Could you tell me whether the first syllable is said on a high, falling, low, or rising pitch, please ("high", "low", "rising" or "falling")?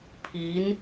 rising